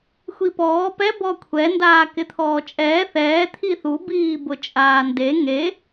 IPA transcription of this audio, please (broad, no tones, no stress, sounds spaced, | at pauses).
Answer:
xʷ i p ɔː p ɛ b ɔ kʷʰ ɛ n d aː k ɪ t̪ʰ ɔː t͡ʃʼ ɛː θ ɛː t̪ʰ i θ u b iː b ʊ t͡ʃʼ aː n d e ŋ e